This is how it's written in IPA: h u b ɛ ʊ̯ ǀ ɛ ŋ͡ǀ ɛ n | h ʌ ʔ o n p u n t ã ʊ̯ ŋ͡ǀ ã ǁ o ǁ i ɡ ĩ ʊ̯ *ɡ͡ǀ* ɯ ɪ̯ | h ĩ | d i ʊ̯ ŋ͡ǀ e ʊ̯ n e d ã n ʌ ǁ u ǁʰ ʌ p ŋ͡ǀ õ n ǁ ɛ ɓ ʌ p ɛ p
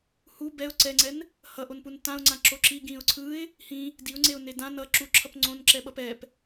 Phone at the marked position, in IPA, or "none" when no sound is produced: ǀʰ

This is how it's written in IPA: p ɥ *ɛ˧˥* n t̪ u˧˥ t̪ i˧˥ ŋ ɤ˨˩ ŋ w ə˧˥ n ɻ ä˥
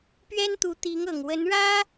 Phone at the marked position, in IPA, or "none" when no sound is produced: ɛ˥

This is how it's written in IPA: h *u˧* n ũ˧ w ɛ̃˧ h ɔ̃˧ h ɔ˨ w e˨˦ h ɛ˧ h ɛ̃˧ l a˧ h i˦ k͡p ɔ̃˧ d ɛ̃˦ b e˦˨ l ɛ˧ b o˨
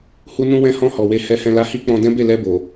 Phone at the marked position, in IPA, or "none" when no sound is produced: u˧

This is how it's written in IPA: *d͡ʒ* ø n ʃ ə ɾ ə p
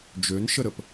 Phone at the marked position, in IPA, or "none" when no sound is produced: d͡ʒ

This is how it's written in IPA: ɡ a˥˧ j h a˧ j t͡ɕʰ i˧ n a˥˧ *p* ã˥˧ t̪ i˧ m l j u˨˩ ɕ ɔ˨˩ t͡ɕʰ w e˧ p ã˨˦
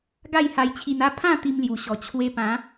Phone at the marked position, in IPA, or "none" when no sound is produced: pʰ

